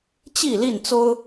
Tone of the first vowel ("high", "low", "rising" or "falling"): falling